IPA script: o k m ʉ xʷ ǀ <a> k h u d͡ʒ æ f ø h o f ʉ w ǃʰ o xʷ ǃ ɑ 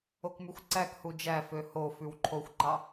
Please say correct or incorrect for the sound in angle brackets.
incorrect